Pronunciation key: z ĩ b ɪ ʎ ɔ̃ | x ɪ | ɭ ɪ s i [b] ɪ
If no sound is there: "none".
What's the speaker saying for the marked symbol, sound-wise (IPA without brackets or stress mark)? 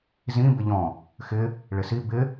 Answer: b